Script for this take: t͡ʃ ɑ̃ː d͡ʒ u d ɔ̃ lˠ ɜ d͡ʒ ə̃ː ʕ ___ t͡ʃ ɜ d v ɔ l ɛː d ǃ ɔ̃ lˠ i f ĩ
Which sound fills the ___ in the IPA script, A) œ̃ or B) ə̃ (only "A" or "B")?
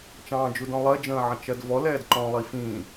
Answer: B